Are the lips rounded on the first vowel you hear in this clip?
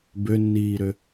yes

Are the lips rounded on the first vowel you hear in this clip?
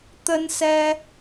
no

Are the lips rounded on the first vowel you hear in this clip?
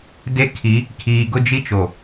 no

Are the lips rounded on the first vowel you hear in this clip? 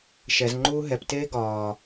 no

